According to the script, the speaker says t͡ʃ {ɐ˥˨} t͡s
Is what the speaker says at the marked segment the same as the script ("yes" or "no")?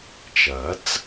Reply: no